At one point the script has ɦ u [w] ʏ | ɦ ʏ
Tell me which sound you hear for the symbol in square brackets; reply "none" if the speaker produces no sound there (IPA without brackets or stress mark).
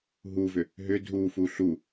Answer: v